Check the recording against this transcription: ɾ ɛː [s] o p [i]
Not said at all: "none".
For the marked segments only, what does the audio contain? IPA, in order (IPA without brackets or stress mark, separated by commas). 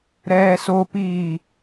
s, iː